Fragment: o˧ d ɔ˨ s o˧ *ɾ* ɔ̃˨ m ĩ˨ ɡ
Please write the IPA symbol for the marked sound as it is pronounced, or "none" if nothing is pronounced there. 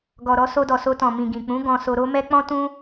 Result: t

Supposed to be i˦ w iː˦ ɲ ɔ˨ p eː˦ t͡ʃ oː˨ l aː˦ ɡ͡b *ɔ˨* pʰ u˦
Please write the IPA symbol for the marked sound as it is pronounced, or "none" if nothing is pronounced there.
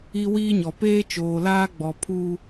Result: ɔ˨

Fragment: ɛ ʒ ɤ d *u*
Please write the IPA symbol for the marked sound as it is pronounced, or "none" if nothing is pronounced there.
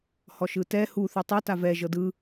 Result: ɯ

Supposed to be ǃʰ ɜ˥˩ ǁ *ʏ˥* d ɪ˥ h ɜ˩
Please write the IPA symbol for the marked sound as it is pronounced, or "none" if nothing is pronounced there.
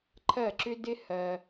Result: ʏ˥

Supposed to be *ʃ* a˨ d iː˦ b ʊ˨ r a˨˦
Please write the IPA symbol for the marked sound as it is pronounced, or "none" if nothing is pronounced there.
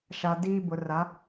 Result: ʃ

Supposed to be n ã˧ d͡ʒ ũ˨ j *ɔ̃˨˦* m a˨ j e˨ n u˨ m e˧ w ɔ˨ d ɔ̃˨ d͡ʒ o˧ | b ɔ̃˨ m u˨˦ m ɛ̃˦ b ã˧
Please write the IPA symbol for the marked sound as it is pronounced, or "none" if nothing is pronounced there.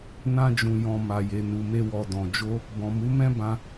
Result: ɔ̃˨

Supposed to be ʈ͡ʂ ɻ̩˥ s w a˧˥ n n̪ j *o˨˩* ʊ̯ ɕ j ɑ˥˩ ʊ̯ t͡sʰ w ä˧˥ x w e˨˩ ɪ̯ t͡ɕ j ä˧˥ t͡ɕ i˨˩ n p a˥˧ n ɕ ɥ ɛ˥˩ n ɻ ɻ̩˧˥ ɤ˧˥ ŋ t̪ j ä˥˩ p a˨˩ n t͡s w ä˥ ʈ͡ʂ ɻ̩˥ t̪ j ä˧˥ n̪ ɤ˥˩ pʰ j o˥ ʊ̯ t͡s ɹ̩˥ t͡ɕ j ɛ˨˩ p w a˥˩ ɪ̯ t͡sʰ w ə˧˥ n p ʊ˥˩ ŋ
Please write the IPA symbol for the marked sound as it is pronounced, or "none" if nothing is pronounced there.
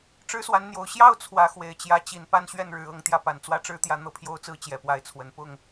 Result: o˨˩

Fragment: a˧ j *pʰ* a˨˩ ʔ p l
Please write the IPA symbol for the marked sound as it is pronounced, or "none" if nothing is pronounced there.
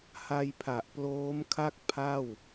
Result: pʰ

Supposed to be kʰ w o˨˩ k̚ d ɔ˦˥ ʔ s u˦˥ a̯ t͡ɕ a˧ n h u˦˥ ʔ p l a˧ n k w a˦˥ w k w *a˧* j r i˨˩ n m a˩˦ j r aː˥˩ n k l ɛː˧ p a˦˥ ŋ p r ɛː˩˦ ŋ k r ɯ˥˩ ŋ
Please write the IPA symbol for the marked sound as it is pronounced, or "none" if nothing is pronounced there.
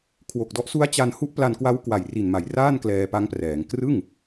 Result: a˨˩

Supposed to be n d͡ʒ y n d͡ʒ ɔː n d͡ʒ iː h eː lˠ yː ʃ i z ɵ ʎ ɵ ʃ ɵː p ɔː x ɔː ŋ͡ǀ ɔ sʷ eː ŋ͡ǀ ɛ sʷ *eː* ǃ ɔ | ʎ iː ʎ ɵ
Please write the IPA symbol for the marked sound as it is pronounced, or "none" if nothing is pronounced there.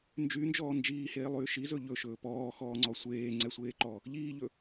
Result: eː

